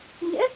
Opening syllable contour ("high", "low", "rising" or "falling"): rising